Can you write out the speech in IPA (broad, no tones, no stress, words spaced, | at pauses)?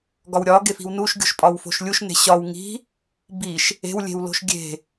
ɡɒwɾʲɒ ɡefi̤wnuʃ ɡʲo̤ʃpʼɒwfo̤ʃlʲuʃ ne̤ɕɒw ŋi̤ | biʃ | e̤w lʲe̤wlo̤ʃɡʲe̤